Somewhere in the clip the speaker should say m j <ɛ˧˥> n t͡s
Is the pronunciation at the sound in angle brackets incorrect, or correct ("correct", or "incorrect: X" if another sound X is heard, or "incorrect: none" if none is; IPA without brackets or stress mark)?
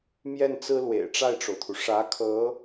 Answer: incorrect: ɛ˥˩